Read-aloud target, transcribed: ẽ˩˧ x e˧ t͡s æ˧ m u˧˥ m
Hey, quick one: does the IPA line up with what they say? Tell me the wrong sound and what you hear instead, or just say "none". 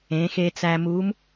none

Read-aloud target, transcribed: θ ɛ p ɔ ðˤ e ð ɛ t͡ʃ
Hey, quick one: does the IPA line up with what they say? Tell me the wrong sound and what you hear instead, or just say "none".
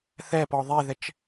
none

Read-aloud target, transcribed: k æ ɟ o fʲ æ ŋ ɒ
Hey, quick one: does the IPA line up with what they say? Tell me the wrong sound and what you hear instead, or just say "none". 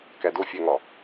ɟ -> d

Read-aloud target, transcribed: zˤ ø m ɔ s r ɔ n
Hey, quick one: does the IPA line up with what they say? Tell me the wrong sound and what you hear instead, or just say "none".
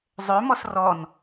none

